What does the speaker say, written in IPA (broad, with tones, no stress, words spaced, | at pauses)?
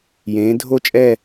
jẽː˨˦dʱo˥˧t͡ʃʼɛ˥˧